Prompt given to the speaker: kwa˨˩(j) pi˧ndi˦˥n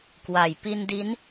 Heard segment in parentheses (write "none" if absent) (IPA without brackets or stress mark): j